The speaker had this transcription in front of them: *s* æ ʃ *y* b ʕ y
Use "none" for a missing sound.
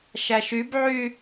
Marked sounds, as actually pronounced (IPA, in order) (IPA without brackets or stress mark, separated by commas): ʃ, y